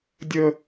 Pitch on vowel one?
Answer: high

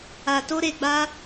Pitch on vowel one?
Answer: low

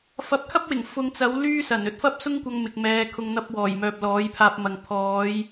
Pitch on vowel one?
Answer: rising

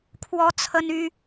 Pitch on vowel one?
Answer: high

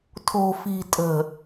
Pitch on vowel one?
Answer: low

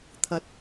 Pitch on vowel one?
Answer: rising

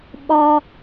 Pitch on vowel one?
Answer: low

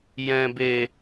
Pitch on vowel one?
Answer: low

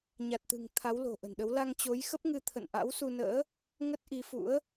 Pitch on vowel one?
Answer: low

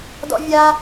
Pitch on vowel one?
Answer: high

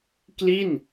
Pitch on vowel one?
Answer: falling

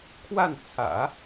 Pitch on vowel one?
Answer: falling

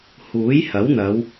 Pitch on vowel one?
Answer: rising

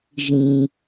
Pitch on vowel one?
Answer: low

